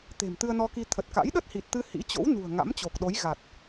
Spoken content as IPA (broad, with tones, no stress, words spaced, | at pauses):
t̪e̤˨˩mt̪ɨ˧ə̯nɔ˧ki˧ t̪ʰə˨˩t̚ka̰˧˥j ɗə˦˥t̚hi˨˩t̚t̪ɨ˧ hḭ˧˥t͡ɕo̰˧˥w nṳ˨˩ə̯ ŋa̰˧˥mt͡ɕo˨˩k̚ɗo˨˦j ɣa˨˩t̚